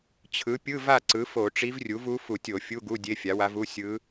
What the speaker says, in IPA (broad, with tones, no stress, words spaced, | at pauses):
t͡ɕʰɯ˩˥ pʲɯ˧˥˧va˥˨ ǀɯ˩˥ fo˧˩˧ʈ͡ʂi˧˥vrʲu˩˥v u˧˥fu˧˩˧tʲo˧˩˧ fʲu˧˥˧ɡu˧˥˧ dʲe˧˥˧fʲa˩˥wa˧˥v u˧˥˧ sʲɯ˧˥